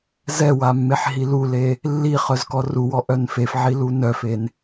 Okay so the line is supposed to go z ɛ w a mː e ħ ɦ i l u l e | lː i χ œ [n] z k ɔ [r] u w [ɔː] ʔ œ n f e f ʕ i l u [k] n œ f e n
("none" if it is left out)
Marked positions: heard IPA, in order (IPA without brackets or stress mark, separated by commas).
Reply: none, r, ɔ, none